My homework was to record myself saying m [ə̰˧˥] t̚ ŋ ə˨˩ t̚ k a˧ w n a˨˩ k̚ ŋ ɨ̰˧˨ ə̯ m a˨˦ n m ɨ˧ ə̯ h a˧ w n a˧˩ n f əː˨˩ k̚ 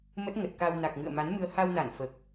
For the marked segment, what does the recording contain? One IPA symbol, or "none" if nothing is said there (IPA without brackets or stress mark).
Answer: ə˦˥